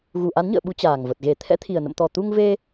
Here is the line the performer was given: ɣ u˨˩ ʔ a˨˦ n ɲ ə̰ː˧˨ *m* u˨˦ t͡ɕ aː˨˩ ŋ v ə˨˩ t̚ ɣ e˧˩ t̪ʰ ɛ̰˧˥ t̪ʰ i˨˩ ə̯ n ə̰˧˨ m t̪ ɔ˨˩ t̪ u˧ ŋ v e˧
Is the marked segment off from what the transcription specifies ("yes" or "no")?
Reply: yes